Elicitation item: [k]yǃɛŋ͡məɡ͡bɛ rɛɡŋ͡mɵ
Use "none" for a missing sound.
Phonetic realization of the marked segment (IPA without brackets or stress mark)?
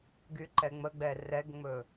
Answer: ɡ